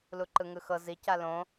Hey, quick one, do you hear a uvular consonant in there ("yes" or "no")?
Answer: no